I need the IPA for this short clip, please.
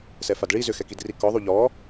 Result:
s ɛ f a d ɭ i z ʏ x ɛ k i d r i k ɔ ðˤ u ʎ ɔ

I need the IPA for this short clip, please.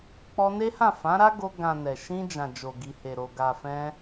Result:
k͡p ɔ˧ n e˦ h ã˦˨ f ã˨˦ ɾ a˦ ɡ o˧ ɡ ã˨ n ɛ˨ ʃ ĩ˧ d͡ʒ ã˨ d͡ʒ o˨ ɡ i˨ h e˨ ɾ o˨ ɡ a˨ f ɛ̃˧

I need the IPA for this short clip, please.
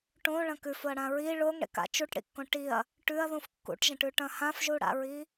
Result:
ʈ õ ɭ ɐ̃ k ʉ f o ɐ̯ ɽ ã ɹ i ɭ o ŋ ɽ ḛ k a̰ t͡ʃ u ʈ ɽ ḭ kː õ ʈ i ɐ̯ | ʈ ʉ ɐ̯ ð ũ f kː ṵ ʈ ʒ ɐ̃ ʈ ʉ ʈ ɐ̃ h ã f ʒ u ɽ a̰ ɹ i

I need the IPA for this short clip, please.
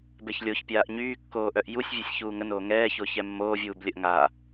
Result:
b ɛ ç lʲ o ç pʲ aː ʔ ɲ yː kː oː ʔ œ ʔ j u sʲ vʲ e sʲ ç uː ŋ ə n oː ŋ ɛː ç o ç ɛ mː oː vʲ uː b lʲ ə ʔ ŋ a

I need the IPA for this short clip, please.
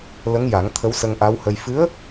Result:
l ə˧˥ ŋ j a˨˩˦ ŋ t̪ʰ ə˧˥ w s ə˧ ŋ ʔ a˧˥ w h ə˧ j f ɨ˧˥ ə̯

